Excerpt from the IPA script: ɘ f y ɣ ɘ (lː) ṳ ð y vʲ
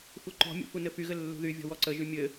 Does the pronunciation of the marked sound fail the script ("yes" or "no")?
no